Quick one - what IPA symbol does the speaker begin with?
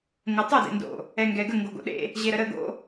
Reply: ŋ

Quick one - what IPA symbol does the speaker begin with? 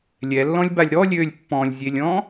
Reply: lʲ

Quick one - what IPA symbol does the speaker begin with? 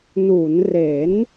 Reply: n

